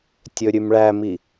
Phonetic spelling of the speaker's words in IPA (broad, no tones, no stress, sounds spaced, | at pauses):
tʲ ɵ ɾʲ ʉ m ɭ æ m i